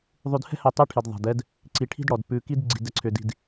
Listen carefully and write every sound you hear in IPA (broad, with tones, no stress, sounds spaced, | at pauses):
ðˤ ʉ˨ d h ɛ̤˦ h ɛ˨ tˤ ʉ˦ ʈʰ i˨ d ðˤ ɛ̤˨ d ɛ˦ d | ǀ i˨ ʈʰ i̤˦ d ɽ ɔ˨ d p ʉ˨ k i˦ d ɡ͡ǀ i̤˨ d ɛ˨ ǀʰ ʏ˨ d i̤˨ d